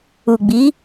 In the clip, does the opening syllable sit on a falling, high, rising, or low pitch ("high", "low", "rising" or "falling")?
low